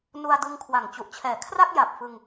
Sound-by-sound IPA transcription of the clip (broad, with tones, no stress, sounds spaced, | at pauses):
n u˧ a̯ d ɯ˧ ŋ kʰ w a˨˩ ŋ t͡ɕ u˨˩ ʔ t͡ɕʰ ɛː˩˦ kʰ r a˥˩ k̚ j a˨˩ p̚ f ɯ˧ ŋ